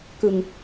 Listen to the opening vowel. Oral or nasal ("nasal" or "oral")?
oral